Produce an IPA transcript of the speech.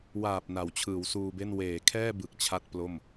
w aː˨˩ p̚ n a˩˦ w t͡ɕʰ ɯː˩˦ w s uː˧ b e˥˩ n w eː˩˦ kʰ ɛː˥˩ b ɯ˨˩ k̚ t͡ɕʰ a˥˩ t̚ p l o˥˩ m

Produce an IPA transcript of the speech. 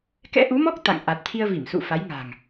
k ɛ̰˧˥ ʔ u˨˦ m ɔ˦˥ k̚ t̪ a̰˧˨ ŋ ʔ a˨˩ t̚ t̪ʰ i˧ ə̯ v i˧˩ m s ṵ˧˨ f a˨˦ j ŋ a̤ː˨˩ ŋ

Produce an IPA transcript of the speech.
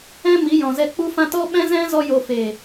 ɛ̃˧ m i˨˦ j ɔ̃˨ z ɛ˧ k͡p u˧ f ã˧ t ɔ˦ ɓ ɛ̃˦ z ɛ̃˦ z ɔ˧ j o˨ f e˨

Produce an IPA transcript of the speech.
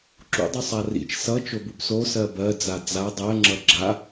ǁ ṵ dˤ u sˤ a r ḭ t͡ʃ s ʌ t͡ʃ o b u b s o s ɜ b ɜ d͡z a d͡z a dˤ ɜ ŋ͡ǁ ʌ ɡ͡ǁ a

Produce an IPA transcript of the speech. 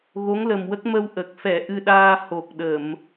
ɣ o˧˥ ŋ l ə˨˩ m w ə˦˥ k̚ m ə˧ w ʔ ə˨˩ k̚ f ɛ˨˩˦ ʔ ɨ˧ ɗ aː˧ h o˨˩ k̚ ɗ ə˨˩˨ m

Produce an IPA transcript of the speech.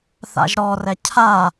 θ a̰ ʒ ɾ ɔ r ɛ cʰ a

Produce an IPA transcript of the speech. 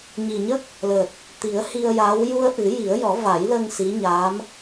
ɲ i˨˩ ɲ ə˦˥ k̚ | l əː˨˩ t̚ | t̪ i˨˩˦ ə̯ h i˧ ə̯ j aː˧˥ w j u˧ ə̯ ʔ ɨ˨˩˦ j i˨˩˦ ə̯ j ɔ˨˩˦ v a˨˩˦ j l əː˧ ŋ s i˧˥ ɲ a˧˥ m

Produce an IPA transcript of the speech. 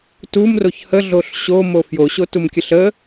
t u m r o ç h ə ɮ o ɬ ɕ o m o f j o ɕ o t u m kʲ ə ɬ ə

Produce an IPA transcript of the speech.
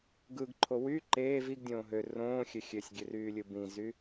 ɡ ɯ ɡ ǃʰ o w y ǃ eː v i ɡ dʲ õː ɦ ø r õː xʲ ø xʲ ø sʲ ɡʲ ø r yː lʲ ɯ b ĩ z y

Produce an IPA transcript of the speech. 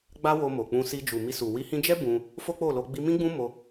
ɡ͡b a˦ w o˧ m o˨ k͡p ũ˧ s i˧ d͡ʒ u˨ m i˧ s u˨ w i˨˦ h ĩ˧ d͡ʒ ɛ˦ b ũ˧ | f o˦ k͡p o˦˨ l o˧ ɡ͡b i˧ m ĩ˦ ɡ͡b ũ˦ m o˧

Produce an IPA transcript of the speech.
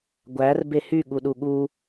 ɡʷ æ r b e h y ɠ u ɗ u ɠ u

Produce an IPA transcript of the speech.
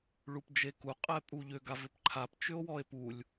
ɭ u p d͡ʒ e k u qʼ ɛ pʼ u ʎ ʏ ɡ a v ʏ p ǃʰ a p t͡ʃ ʏ o̯ w ɔ e̯ p u lʲ

